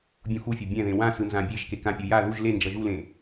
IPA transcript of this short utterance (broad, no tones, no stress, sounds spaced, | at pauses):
bʲ ũ x u fʲ o bʲ ɛ̃ ð ẽ w ã s ɯ n z ã bʲ e ʒ k e k ã pʲ u j a ð u ʒ l e n d͡ʒ ʌ ʒ u l ẽ